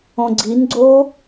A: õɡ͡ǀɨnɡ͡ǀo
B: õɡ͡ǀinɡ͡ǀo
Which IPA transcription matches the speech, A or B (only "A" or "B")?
B